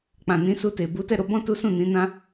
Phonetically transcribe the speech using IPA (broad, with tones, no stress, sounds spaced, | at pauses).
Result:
k͡p ã˨ n ĩ˨˦ s u˧ t e˨ b u˨˦ t ɛ˦˨ ɾ o˧ b ɔ̃˦ t u˦ s ũ˦˨ n ĩ˨˦ n ã˦